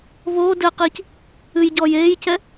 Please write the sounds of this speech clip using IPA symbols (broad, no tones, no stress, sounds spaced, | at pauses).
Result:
β oː d ɘː q iː c | ɨ j ɟ ɔː j eː j c ɛ